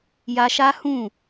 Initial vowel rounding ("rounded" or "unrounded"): unrounded